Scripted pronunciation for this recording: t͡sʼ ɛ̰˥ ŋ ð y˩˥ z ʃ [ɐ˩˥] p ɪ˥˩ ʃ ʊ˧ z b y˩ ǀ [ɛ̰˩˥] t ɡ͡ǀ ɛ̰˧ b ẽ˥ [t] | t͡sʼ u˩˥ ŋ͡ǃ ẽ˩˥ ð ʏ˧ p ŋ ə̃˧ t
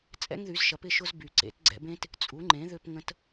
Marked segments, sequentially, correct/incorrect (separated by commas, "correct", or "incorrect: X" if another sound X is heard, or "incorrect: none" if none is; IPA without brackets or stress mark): correct, incorrect: ḛ˩˥, correct